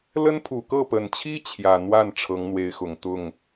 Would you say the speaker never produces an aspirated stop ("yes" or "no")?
no